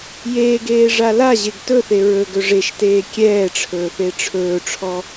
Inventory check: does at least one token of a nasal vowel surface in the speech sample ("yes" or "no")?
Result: no